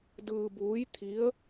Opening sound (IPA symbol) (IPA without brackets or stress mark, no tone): d